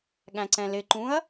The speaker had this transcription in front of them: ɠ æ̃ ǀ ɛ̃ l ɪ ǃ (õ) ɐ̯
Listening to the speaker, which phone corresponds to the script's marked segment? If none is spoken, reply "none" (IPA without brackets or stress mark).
ũ